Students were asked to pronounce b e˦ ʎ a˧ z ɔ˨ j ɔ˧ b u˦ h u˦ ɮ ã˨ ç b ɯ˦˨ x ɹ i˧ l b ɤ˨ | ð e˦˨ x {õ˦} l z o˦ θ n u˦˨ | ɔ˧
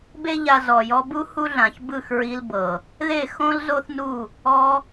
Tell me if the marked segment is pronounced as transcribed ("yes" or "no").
yes